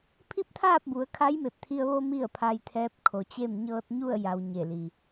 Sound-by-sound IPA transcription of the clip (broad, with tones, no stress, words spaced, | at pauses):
pʰi˥˨p̚t̪ʰaː˥˨p̚bu˩˧ə̯ kʰa˧˥jme˧˩p̚t̪ʰi˧ə̯ ʋo˧ mi˥˨ə̯ pʰa˧jt̪ʰɛː˧˥p̚kʰo˩t͡ɕe˥˨m ɲɤː˧t̚ɲu˥˨ə̯ja˩w ɲe˧˩li˩